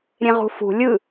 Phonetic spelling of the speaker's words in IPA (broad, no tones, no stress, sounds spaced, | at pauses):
ɾʲ ẽ ʁ ṳ f ṳ lʲ ɯ